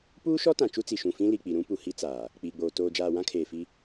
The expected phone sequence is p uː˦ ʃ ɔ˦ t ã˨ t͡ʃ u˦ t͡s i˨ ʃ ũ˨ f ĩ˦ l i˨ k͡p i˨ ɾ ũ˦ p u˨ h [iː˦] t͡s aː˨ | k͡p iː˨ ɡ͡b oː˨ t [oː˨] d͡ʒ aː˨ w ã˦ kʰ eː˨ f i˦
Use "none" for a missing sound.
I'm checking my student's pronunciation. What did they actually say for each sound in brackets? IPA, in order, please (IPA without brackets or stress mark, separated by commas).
i˦, oː˨